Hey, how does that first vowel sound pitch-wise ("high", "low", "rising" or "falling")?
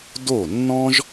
falling